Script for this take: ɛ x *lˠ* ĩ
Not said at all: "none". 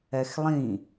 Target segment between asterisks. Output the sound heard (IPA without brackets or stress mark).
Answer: lˠ